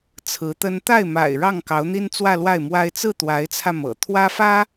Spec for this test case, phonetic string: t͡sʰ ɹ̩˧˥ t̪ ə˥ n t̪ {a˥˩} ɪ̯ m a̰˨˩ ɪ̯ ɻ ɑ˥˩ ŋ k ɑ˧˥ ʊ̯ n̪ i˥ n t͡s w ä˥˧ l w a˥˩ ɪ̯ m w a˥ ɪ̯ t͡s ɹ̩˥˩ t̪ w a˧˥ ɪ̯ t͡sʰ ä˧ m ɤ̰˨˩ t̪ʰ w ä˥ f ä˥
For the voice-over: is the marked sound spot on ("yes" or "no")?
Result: yes